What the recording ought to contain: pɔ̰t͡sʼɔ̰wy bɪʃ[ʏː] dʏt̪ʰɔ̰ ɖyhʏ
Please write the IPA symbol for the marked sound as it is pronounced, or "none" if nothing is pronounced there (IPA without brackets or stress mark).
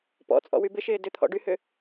ɪː